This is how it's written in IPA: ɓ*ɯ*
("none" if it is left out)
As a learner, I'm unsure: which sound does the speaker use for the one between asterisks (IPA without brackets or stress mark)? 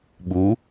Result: u